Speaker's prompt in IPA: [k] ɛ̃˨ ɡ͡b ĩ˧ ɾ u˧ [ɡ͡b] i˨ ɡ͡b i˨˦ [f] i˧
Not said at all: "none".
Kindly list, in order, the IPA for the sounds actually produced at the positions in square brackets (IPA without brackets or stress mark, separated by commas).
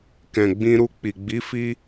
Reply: k, k͡p, f